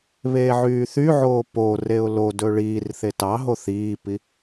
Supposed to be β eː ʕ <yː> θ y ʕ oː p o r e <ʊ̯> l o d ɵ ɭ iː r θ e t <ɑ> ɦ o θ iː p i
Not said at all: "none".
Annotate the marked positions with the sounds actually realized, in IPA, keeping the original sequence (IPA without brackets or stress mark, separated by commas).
yː, ʊ̯, ɑ